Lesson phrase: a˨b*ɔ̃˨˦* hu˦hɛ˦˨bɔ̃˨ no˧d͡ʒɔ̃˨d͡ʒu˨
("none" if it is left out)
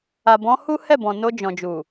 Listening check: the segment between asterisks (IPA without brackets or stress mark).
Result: ɔ̃˨˦